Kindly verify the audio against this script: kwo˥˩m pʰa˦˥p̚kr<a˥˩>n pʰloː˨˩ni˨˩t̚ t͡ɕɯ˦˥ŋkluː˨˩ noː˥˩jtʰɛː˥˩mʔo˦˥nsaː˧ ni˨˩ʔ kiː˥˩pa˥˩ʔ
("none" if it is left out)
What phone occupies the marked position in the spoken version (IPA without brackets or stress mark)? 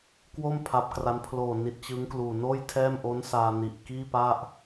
a˦˥